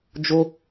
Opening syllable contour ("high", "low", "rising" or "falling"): high